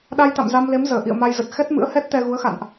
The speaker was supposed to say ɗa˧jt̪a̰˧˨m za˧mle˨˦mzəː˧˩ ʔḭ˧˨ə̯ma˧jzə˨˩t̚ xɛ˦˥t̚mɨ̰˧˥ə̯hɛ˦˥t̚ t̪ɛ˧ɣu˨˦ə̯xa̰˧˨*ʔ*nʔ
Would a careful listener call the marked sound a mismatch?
yes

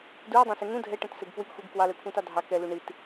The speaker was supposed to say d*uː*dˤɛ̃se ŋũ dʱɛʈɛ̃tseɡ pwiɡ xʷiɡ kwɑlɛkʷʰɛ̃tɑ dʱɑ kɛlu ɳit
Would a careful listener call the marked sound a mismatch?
no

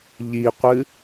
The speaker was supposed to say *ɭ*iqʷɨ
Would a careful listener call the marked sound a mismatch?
yes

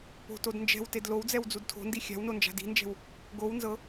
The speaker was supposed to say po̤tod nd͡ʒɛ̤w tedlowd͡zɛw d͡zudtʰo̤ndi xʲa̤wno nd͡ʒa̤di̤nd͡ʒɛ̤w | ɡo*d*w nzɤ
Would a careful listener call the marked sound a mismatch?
yes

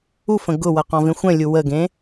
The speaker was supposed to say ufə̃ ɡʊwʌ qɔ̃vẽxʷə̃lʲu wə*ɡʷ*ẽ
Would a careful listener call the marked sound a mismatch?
yes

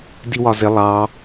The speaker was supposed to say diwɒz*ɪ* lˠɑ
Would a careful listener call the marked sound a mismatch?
no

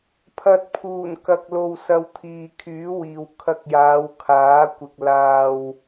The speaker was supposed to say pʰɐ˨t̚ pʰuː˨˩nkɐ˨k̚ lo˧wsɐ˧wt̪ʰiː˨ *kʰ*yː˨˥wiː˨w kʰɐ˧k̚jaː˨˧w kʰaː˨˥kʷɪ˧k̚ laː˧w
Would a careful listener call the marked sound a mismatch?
no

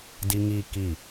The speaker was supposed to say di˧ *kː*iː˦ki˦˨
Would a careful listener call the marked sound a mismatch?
yes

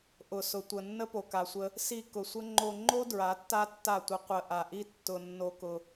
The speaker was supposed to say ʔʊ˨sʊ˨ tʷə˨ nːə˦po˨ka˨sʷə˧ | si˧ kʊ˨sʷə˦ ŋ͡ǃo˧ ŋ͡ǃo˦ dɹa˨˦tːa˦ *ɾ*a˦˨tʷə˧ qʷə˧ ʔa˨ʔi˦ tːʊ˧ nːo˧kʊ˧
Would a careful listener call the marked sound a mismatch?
yes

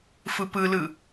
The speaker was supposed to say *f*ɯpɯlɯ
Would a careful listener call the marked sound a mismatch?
no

